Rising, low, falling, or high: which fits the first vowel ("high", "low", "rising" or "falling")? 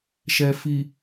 low